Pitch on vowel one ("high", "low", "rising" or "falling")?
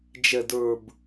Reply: low